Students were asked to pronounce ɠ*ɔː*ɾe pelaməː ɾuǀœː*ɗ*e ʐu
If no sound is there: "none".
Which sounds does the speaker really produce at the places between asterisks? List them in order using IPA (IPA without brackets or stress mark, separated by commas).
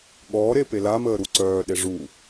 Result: ɔː, ɗ